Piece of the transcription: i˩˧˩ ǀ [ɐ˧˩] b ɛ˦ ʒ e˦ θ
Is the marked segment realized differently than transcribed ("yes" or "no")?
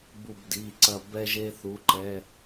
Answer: no